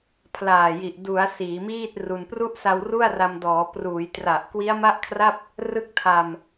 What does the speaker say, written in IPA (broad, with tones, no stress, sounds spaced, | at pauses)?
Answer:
pʰ l aː˨˩ j i˨˩ ʔ d u˩˦ a̯ s iː˩˦ m iː˥˩ t̚ r u˧ n p r u˦˥ ʔ s a˧ w r u˥˩ a̯ r a˧ m d ɔː˩˦ p r uː˩˦ j t r a˨˩ ʔ k w i˦˥ a̯ m a˥˩ ʔ kʰ r a˥˩ p̚ | r ɯ˦˥ k̚ tʰ a˧ m